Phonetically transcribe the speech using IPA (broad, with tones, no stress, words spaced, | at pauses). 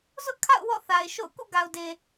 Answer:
zʊ˦ʔkʰa̰˦˨ʊ̯ wɔ̰˦˨θa˨ɪ̯ ʃo̰˦˨ʊ̯ kṵ˦˨ɡa˨ʊ̯de˨